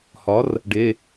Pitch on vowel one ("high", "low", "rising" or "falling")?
rising